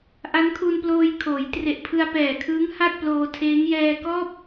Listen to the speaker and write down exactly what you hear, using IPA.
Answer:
ʔ a˦˥ n kʰ u˧ n p l oː˧ j kʰ oː˩˦ j t r e˨˩ ʔ pʰ ɯ˧ a̯ p ɛː˨˩ kʰ ɯː˦˥ ŋ h a˥˩ t̚ p l oː˧ tʰ eː˦˥ ŋ j ɛː˧ k ɔː˥˩ p̚

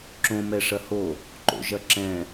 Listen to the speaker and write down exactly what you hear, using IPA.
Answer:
ǁ õ m ɛ ʂ ɐ h o | ǃ o̰ ʒ ɐ ǁ ɛ̃

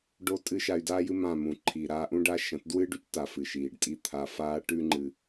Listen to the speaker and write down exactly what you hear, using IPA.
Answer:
ɖ o˦ tʼ ɨ˦ ʃ a˧ y̯ d aː˦ j ɨ˦ m ã˦˨ m ũ˨ ǃʰ i˨ ɾ aː˧ ʔ ũ˦ ɖ a˦ ʃ ɐ̃˨˦ t d w ɨ˦ ɖ ʉ˦ c t a˨ f ɨ˨ ʃ iː˨ ɖ tʼ i˦ t̪ʰ a˧ f aː˦ ʈ ʉ˧ ŋ͡ǃ ɨ˨

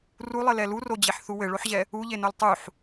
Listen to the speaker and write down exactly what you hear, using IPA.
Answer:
r u lˠ ɘ l ɛ l u r o d͡ʑ e ħ θ u w ɘ ɭ o ħ ʑ ɛ | u ʎ e n o l tˤ u ħ

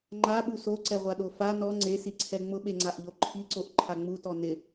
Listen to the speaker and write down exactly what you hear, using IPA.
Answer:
ŋ͡ǃ a ɓ u s o ǀ ɛ ʁʷ a ɗ o f a n ɔ ŋ͡ǀ e s i ǀʰ ɛ ŋ͡m ʊ ɓ e ŋ͡ǀ a ʔ ʎ o ǃʰ i ǀ o ʔ ǃʰ a ŋ͡m u t ɔ n ɪ

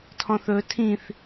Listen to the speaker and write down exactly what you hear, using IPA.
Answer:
tʰ ɔ̃ θ ɵ tʰ ĩ θ

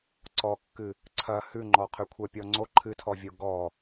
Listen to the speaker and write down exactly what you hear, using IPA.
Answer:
ǀ ɔ kː ɨ | ǀʰ ɐ h ʉ ŋ͡ǃ ɔ qʰ ʉ kʷʰ ɛ pʲ ɔ ŋ͡ǀ o ǃʰ ɨ tʰ ɔ vʲ o ɡ ɔ

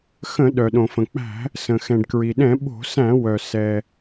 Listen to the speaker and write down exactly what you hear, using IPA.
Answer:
x ə̃˧˩˧ ɗ œ˩ ɗ õ˩ f ə̃˩ k͡p æ̤˧˩˧ | s ə̃˩ x ɛ̃˩ ɖ k ɹ i˩ ɗ ɛ̃˧˩˧ ɓ o̤˧˩˧ s æ̃˧˩˧ w œ˩ s ɛ˩

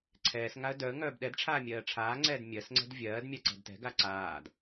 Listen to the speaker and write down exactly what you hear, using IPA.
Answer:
ǀʰ ɛː s ŋ a ə̯ d œ ə̯ ŋ œː b ɗ ɛ d ʈ͡ʂʰ aː mʲ ɜː ʈ͡ʂʰ aː ŋ͡ǀ ɛː d mʲ ɜ s ŋ͡ǀ ɛ̤ d vʲ ɜː d mʲ a ǀ ɛ̤ d t ɛ̤ ɡ a ǀ aː d

